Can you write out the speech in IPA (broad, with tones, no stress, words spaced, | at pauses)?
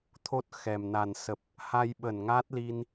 t̪ʰo˦˥t̚xɛ˨˩mna˨˩n sə˨˩p̚ | ha˧jɓə˧˩n ŋaː˦˥t̚li˧n